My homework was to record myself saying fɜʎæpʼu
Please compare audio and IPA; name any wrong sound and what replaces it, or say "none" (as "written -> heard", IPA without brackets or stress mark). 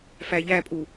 ɜ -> æ